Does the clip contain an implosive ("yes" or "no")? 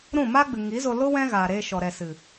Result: no